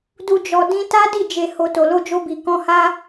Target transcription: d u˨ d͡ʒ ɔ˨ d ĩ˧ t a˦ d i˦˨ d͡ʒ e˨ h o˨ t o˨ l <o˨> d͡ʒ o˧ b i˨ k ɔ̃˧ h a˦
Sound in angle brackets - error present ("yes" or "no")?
yes